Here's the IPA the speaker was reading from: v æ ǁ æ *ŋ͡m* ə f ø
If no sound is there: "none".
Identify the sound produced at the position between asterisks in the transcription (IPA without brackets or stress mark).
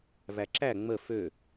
ŋ͡m